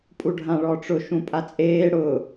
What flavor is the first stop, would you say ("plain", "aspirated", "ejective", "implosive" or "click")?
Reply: ejective